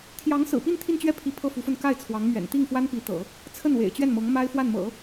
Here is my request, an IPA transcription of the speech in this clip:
t̪ʰ j ɑ˧˥ ŋ s ɹ̩˨˩ p i˥˧ n t̪ʰ i˥˧ n t͡ɕ ɥ ɛ˥˩ pʰ i˧˥ pʰ ɤ˥˩ f u˧˥ f ə˥˧ n k a˥˩ ɪ̯ t͡sʰ w ɑ˧˥ ŋ m ɥ ɛ̰˨˩ n t̪ i˥˩ ŋ f w a˥ n p i˧˥ t̪ ɤ̰˨˩˦ | t͡sʰ ə˥˩ n w ḛ˨˩ ɪ̯ t͡ɕ ɥ ɛ˥˩ n m ɤ˧˥ ŋ m a˥ ɪ̯ f w a˥˩ n m ɤ̰˨˩˦

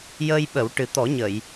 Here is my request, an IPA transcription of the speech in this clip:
j əː˧ j ɓ ə˨˩˦ w ʈ ɨ˨˩ t̪ ɔ˨˩˦ ɲ ə˨˩˨ j

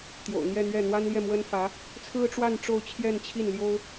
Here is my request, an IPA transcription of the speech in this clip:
t̪ j o̰˨˩ ʊ̯ n̪ j ɛ˥˧ n̪ ɥ ɛ˥˩ n̪ w a˥ n l j ɛ˥˩ m w ə˥ n f ä˧˥ | t͡sʰ ɹ̩˥ ʈ͡ʂ w a˥˧ n ʈ͡ʂ o˥˧ ʊ̯ t͡ɕʰ j ɛ˥˧ n t͡ɕʰ i˥˩ n l j o˥ ʊ̯

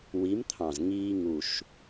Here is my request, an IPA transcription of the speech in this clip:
w i˨˥ m t̪ʰ ɑ̃˨˩ z ŋ iː˧ ŋ u˨˩ ʃ

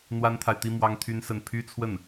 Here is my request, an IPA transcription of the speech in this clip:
n̪ w a˥ n t̪ʰ a˨ ɪ̯ t̪ i˥ m w ɑ˥ ŋ t̪ʰ y˥ n s ə˥˩ n pʰ y˥ t͡sʰ w ə˥˩ n

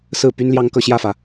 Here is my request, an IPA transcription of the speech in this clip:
s ɹ̩˥˩ p y˥ n l j ɑ˥ ŋ k ɤ˥˧ ɕ j ä˥˩ f ä˩

